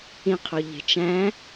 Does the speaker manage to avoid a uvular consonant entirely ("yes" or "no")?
no